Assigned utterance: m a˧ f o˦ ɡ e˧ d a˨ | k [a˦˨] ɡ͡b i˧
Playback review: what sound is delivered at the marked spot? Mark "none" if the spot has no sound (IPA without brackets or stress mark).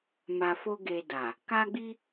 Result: a˧